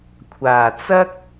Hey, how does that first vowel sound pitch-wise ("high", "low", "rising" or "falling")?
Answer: low